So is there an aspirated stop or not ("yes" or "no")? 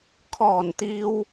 yes